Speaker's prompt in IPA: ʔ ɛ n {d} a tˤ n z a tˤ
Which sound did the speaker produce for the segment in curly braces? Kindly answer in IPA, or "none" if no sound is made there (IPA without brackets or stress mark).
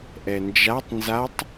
d͡ʒ